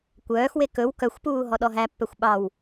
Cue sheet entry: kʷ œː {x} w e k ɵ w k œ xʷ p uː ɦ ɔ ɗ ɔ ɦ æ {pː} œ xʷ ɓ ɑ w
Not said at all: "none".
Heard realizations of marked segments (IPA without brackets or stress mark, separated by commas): x, pː